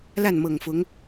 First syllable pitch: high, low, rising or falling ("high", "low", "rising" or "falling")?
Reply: falling